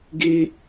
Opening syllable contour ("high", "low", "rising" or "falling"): high